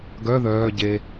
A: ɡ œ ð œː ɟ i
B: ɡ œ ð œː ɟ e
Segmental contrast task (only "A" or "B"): B